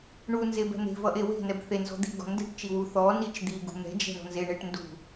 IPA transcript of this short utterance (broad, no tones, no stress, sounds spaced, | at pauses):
ɳ u n z e b ɛ̤ n̪ e̤ v ʌ ʔ e w e̤ n ɛ b θ e n z ɔ̤ d̪ i̤ ɡ ɔ̤ n d e̤ ʈ t͡ʃ i w u θ ɔ n i t͡ʃ d̪ i ɡ ṳ n̪ ɛ̤ d͡ʒ ɛ̤ ɳ ɔ̤ n z e ɳ e ʈ n d ṳ